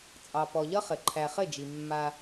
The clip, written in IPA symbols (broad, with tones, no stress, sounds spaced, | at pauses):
t͡sʼ ɑ˨ p ɔ˨ ʎ ʌ˦ χ ɘ˨ ǃʰ æ˨ χ ɘ˦˨ d͡ʒ i˨ mː a˦